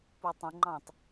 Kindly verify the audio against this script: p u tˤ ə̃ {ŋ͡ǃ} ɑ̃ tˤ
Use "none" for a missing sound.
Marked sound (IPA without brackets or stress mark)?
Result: ŋ͡ǃ